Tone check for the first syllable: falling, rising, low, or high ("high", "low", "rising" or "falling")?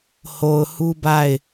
low